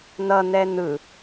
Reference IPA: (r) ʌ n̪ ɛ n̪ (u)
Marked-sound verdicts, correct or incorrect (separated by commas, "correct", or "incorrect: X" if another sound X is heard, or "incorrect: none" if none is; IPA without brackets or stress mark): incorrect: n̪, incorrect: ɯ